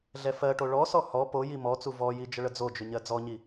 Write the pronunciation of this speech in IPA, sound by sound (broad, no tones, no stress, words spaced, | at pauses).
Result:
ɮɛfɜʈo ɭɔsɔ hɔ poji mɔt͡su vɔji d͡ʒəɭəd͡zod͡ʒʏ ɲɜd͡zɔɲi